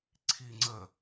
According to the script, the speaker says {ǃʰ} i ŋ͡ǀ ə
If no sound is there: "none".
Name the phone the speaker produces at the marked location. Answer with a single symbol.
ǀʰ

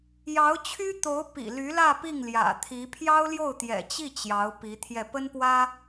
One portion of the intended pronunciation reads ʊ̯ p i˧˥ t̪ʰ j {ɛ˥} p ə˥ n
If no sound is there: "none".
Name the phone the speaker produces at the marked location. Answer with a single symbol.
ɛ˥˩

